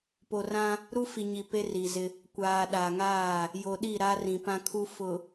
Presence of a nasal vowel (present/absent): present